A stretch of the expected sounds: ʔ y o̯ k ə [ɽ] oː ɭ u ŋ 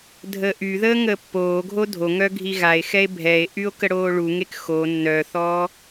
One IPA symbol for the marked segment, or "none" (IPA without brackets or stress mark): ɽ